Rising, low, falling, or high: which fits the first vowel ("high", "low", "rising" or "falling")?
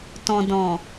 low